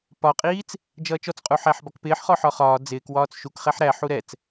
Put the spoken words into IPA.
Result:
p ɒ qʼ iː t͡s | d͡ʒ ʌː t͡ʃ ɔ t͡s qʼ u ħ æ ħ b ɒ k p ɪː ħ χ ɔ ħ ɒ χ ɒː d͡z ɪː k w ɒː t͡s ʃ u k χ ɛ ħ ɾ æ ħ u ɾ ɛ t͡s

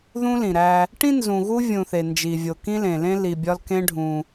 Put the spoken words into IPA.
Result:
ð ũ˦ l ĩ˩ ɾ æ˨ | ʈ ĩ˥ n z ũ˨ ɣ u˦ vʲ ũ˨ θ e˩ n d͡ʒ i˩ vʲ o˩ k ĩ˦ l ẽ˩ l ẽ˦ l i˨ bʲ ɒ˦ l k ẽ˦ ɖʱ ũ˩

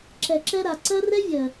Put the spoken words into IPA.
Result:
ǁ ɛ˨ ǁ ɛ˧ ɾ a˨ ǀ ɜ˦ r ɛ˦ vʲ ɜ˨

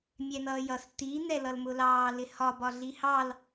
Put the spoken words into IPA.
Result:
mʲ ɛ n̪ ʌː j ʌ s t i n̪ ɛ l ʌ l m ʊ l ɑː l ɪ h ɒ b ɒ ɮ i h ɑ l

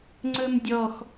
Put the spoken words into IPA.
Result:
ŋ͡ǀ ɵ m dʲ ɔ x

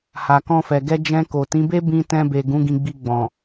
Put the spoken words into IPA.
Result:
h a˨ k ɔ̃˧ f ɛ˨ ɡ ɛ˧ d͡ʒ ɛ̃˧ k o˨ t ĩ˨˦ b e˦ b ĩ˧ t ɛ̃˧ b e˨ ɡ ũ˨˦ ɡ ĩ˧ ɡ͡b i˧ ɡ͡b ɔ̃˨

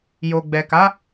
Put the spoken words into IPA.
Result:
j o˨ ɡ͡b ɛ˨ k a˨˦

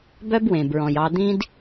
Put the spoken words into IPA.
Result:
b œ˦ b w ẽ˨ b ɹ ɔ̃˨ j ɑ˧ d̪ ĩ˦ d

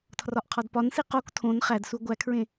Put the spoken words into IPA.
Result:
tʰ r ɒ ʔ qʰ ɒ d p ɒ n s i q o k tʰ õ n χ æ d s u ɡʷ æ kʰ ɹ ẽ

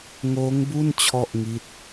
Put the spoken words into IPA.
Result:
ŋ oː˦˥ ŋ b u˥˩ n t͡ɕʰ ɔ˥˩ ʔ ŋ i˦˥ t̚

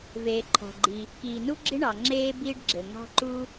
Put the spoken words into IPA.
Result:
v eː˩ ǃʰ ɔ̤˩ ɡ͡ǃ i˩ | k iː˩ n u˥ ɡ͡ǁ i˥ ɳ ɑ˩ ŋ͡ǁ eː˥ b iː˥ ɖ ɡ͡ǁ ɘ˩ ŋ ɑ̤˥ ǃ u˥

